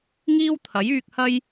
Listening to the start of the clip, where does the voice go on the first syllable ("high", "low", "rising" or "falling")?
high